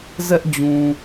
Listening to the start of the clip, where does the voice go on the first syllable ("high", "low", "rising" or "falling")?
high